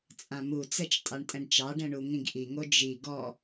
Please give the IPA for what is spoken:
t͡sʼãmut͡sɛt͡ʃ tʼɑɳtʼɛ̃ɖt͡ʃɑɖɛ̃ ɳuŋĩɡʔiŋo d͡ʒi ɡɔ

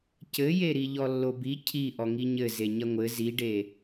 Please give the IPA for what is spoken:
cɘje ɾiʎɔlːobi cʰi ʔɔŋiɲɘ zeɲɐŋʷɘ ziɖe

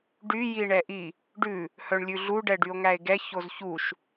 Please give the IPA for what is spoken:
ɖy jiɳɛʔi | ɖʉ | hœɳlʲʉɮu ɖɛɖyo̯ŋæe̯ɡɛ çozçuʃ

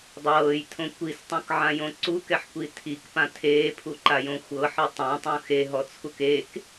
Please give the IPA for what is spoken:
dˤɤːjtʰõ kʷistˤõkʕãjõ ǀukɛħkʷi tʰikpã tʰeːpʰuǃajõ xʷɤħɤ tˤãtˤũ xeɦɔt͡sʰuk ek

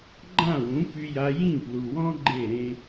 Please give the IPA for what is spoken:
ɡ͡ǃã˦˨wũ˨˦ py˧ja˧ jĩ˦˨plu˨wɔ̃˦ ɡ͡ǃe˦˨ ɾẽ˦

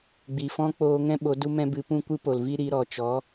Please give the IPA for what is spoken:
ɡ͡bi˨fɔ̃˦ k͡poː˧ŋɛ̃˦ɓo˨˦ du˦mɛ̃˦bɨ˧ pũ˦kʷɨ˦po˨lvi˦ ɾi˨˦ɾɔ˨ t͡ʃɔ˨˦

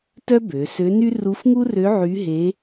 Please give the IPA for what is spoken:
tœ˥ bø˩˧sø˧˥ny˥ ru˧˥fŋu˥rø˧˥ ʕy˧˥ɦe˧˥

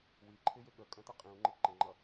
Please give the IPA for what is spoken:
wiǃʰɪjɪ ɠəkʼə̃ tʌqʼĩu̯ŋ͡ǃɪ ǃə̃ŋ͡ǃʌ

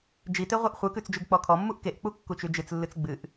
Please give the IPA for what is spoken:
d͡ʒite ʁʷɨʔχʷɨkʉt͡s d͡ʒʉɡk͡pɔkʰɔmːuʔ keʔk͡pu kːut͡ʃʉd͡ʒɨt͡slːɨt͡s ɡ͡bɨʔ

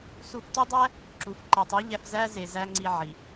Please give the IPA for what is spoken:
su˧ftu˦dˤæ˦ | ǁu˨f ǃe˨tˤi˨˦ʎæ˧fzæ˦ ze˧ zæ˦ŋ͡ǀi˧ ʕi˨

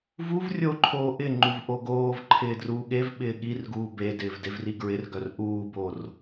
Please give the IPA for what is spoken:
vuv rʲoǃʰoː ʔɪŋ͡ǃuv ʔoɡoːvǃʰɪː druːɠevɓɪː ɠirɡuː bedɪːv devriɡɹɪrɡœr ʔuːbor

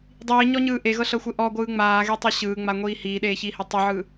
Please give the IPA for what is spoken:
dˤiːɲɔɲɯː ʔeɣɤɬɤxʷe ʔɔɡʷɯː ŋ͡maːɣetˤe ɕɯːŋ͡maŋʷiː hiːɗeːçiːhe tˤɯʕɯ

